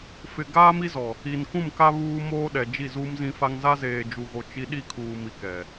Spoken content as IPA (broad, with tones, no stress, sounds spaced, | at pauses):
f ɪ˨ ɡ aː˦ m i˦ z ɔ˨ | i˨ n k ũ˦˨ m k a˦ β uː˦ m oː˦ ɗ ɛ˨ d͡ʒ i˦˨ z uː˦ m z ĩ˦ f a˦ ŋ z a˦ z eː˨ d͡ʒ u˨ ɣ o˨ t͡ʃ i˦ ɗ i˦˨ kʰ uː˨ m i˨ k ɛ˨